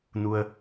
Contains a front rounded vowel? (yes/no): no